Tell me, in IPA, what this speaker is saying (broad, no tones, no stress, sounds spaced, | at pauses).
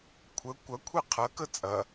kʷʰ ə kʷ ɐ kʷʰ ɛ qʰ ɐ k ə t͡sʼ ɐ